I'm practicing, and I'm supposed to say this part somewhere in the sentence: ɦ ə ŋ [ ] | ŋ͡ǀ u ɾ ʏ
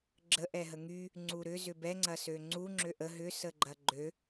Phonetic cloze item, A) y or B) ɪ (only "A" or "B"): A